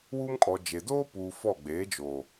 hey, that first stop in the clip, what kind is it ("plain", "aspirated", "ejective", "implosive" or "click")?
ejective